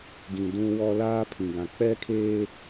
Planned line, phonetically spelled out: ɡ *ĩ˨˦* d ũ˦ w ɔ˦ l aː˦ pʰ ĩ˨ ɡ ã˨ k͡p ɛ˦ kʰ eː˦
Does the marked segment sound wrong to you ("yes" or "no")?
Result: yes